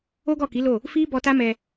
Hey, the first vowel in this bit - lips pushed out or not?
yes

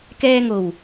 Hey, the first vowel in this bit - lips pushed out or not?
no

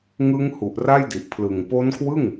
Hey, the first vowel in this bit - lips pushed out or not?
no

